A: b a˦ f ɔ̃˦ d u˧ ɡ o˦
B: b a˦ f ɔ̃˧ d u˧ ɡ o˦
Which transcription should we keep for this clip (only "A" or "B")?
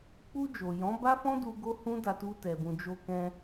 A